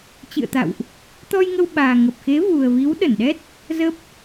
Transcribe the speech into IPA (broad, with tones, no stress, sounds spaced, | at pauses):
t͡ɕ ɨ̰˧˨ ə̯ t̪ a̰˧˨ w ʔ | t̪ ɔ˧ j ŋ ə˧ w ɓ aː˨˩ ŋ ə˨˩ p̚ x e˨˦ v u˨˩ ə̯ v i˨˦ w ɗ ə˧˩ n ɗ ɛ˦˥ t̚ | z ə˦˥ p̚